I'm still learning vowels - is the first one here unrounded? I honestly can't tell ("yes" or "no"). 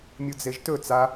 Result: no